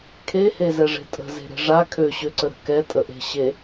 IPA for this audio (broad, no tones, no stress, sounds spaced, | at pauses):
kʰ e h e z ɛ ʐ e̤ tʼ ə̤ z e̤ ɾ e̤ ʐ a kʰ ø ɕ ø ǀ ə ɾ ə̤ k ɛ tʼ ə ʔ e̤ ɕ e